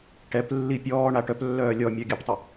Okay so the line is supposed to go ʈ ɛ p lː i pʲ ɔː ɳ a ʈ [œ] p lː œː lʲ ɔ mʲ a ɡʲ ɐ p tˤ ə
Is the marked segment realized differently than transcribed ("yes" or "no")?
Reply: no